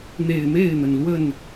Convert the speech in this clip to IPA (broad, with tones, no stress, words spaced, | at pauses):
n̪e˨˩ɪ̯me˥˨ɪ̯n̪ə˩n lwə˥˨n